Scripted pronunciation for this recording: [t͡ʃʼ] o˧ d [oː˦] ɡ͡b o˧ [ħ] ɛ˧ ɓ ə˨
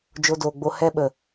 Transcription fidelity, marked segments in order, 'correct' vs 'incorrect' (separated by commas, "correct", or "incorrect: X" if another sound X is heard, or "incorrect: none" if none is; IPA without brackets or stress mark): incorrect: d͡ʒ, incorrect: oː˨, incorrect: h